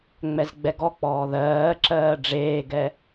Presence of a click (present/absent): present